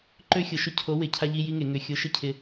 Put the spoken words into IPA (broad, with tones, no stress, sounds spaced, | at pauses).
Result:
ǃ ø˦ xʲ ʊ˨˥ ʃ ʊ˥˨ cʰ o˨˥ w ɪ˨˩˦ cʰ a˦ ʎ i˦ j i˦ ŋ e˨˩˦ ŋ ʏ˨˩ xʲ ʊ˨˥ ʃ ɪ˦ cʰ ɪ˨˩